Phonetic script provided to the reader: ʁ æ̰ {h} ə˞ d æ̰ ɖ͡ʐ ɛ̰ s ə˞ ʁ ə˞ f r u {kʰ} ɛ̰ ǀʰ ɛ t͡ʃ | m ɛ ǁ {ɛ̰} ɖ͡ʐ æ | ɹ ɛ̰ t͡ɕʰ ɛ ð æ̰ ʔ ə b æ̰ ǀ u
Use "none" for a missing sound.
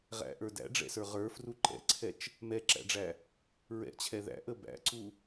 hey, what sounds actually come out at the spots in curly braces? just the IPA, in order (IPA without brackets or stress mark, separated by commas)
ʔ, ǃ, æ̰